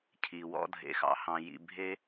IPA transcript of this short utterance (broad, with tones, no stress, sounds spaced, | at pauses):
cʰ i˩ w ɔ̰˨ dʱ ḛ˩ x ɑ̰˩ h ɑ̃˩ j ḭ˨ bʱ e˦